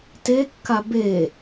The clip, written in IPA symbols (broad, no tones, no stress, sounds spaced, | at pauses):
t e kː a b e